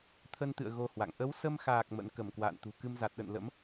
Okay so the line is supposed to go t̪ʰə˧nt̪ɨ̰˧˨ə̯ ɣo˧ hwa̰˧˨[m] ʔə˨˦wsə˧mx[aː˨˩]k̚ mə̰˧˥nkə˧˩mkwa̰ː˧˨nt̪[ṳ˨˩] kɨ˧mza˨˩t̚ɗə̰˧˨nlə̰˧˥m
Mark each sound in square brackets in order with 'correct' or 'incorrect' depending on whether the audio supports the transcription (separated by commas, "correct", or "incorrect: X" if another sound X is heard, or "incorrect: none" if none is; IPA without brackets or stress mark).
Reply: incorrect: ŋ, correct, correct